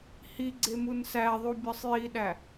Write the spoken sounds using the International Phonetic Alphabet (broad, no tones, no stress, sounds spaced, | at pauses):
h i ɡ͡ǀ e m u n s æ ðˤ u bʲ ɒ sˤ j i ɗ æ